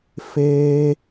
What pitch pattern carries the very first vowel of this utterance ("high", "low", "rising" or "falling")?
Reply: high